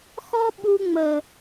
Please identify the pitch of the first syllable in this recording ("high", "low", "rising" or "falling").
high